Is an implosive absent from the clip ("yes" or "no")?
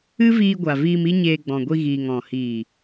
yes